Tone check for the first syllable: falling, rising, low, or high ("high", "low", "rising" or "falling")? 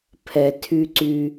low